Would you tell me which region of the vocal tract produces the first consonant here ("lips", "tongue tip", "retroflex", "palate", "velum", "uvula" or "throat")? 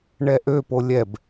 retroflex